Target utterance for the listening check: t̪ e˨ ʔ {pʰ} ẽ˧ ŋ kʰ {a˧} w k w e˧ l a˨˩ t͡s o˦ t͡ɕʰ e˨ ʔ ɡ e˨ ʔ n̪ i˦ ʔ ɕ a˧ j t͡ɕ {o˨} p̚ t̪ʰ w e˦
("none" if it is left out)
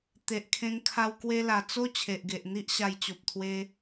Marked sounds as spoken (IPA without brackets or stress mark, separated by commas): kʰ, a˧, o˨